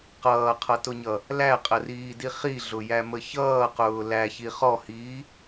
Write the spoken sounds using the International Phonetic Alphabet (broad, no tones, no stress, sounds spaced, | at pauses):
q ʌː qʰ ʌ t ʊ ɲ ʌ | l æ qʼ ə r iː d i χ i ɮ ʊ j æ m ə ç ʌː q ʊː l æ ç i χ ɔ h iː